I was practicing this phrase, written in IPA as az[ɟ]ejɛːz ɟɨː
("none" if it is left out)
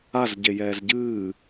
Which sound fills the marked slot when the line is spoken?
ɟ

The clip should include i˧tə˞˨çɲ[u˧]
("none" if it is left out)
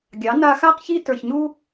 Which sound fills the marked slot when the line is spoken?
u˧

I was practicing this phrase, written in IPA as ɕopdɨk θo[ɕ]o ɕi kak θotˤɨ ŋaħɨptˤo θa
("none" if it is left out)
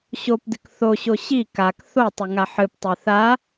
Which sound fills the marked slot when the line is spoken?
ɕ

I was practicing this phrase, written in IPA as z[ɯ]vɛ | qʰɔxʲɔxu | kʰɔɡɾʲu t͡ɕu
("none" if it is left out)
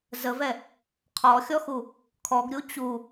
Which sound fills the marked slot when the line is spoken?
ə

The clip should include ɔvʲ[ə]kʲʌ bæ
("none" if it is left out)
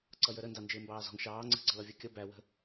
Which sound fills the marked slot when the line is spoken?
ɔ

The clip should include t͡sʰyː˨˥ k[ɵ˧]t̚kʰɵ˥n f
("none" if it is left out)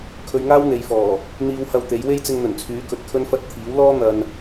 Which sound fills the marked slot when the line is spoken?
ɵ˨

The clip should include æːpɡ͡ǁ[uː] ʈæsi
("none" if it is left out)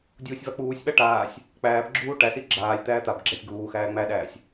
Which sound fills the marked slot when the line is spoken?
uː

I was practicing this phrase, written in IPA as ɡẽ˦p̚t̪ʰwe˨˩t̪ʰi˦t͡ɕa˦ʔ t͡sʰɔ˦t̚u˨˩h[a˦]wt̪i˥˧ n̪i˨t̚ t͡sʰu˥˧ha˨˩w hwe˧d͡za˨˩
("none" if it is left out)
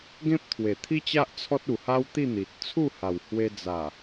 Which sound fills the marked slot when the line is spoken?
a˦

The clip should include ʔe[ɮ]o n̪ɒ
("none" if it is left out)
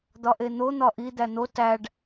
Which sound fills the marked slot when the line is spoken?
n̪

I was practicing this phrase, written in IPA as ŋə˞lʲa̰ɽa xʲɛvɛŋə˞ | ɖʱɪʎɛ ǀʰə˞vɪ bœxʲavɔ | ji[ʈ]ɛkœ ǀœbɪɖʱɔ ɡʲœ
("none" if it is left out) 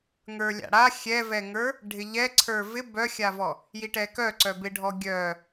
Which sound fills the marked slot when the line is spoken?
ʈ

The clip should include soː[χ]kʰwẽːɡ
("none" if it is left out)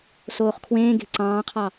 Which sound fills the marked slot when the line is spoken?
χ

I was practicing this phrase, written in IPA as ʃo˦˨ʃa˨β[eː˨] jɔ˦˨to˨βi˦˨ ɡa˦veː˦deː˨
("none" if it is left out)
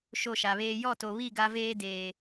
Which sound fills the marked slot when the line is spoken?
eː˦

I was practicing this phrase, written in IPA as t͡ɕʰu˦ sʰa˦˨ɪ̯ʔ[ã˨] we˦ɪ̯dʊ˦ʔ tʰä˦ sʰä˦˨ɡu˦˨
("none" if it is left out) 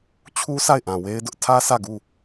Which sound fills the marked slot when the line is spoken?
ã˨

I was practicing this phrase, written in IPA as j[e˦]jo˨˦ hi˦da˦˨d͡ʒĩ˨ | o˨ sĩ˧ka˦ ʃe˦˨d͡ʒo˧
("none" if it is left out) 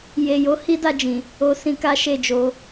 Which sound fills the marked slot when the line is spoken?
e˨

